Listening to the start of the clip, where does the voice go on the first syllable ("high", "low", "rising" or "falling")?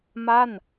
falling